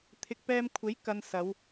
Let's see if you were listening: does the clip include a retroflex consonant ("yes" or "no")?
no